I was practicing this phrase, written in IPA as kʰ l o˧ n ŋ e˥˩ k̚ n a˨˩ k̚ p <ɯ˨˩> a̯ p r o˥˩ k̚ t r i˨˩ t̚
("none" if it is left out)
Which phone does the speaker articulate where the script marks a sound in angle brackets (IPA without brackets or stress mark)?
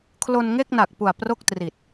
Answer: u˨˩